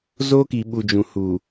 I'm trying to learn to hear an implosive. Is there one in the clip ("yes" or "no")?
yes